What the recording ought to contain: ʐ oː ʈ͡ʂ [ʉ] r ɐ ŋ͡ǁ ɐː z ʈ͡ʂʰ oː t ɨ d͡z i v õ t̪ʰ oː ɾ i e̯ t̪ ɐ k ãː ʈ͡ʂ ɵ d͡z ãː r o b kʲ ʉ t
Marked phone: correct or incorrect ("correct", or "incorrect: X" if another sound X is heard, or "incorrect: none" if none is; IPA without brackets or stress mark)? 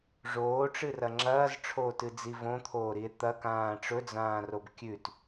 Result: incorrect: ɨ